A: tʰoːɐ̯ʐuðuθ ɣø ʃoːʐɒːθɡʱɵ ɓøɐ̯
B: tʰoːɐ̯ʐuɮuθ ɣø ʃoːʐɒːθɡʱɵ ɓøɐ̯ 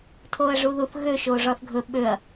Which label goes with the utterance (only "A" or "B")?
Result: A